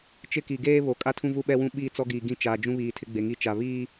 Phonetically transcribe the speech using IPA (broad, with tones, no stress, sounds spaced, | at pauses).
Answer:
t͡ʃ ɪ˦ k i˨ ɡ eː˦ β o˨ kʼ a˦ tʰ ũ˦ v u˦ ɓ ɛ˦ w ũ˦ ɓ iː˦ t͡s ɔ˦ ɡ iː˨ ɡ ĩ˦ t͡ʃ aː˨ d͡ʒ ũ˦ β iː˨ tʰ ɪ˦ ɡ͡b e˨ ŋ i˦ t͡ʃ a˨ β iː˦